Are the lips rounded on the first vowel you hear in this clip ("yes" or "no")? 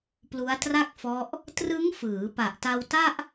yes